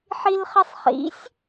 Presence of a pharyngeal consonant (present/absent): present